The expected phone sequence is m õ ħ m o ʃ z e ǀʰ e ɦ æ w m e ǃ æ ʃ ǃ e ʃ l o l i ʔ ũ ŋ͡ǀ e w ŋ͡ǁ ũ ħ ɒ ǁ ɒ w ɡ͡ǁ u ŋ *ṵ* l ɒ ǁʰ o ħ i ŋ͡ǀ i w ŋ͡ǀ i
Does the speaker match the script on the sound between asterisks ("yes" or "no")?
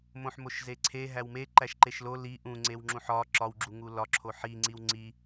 no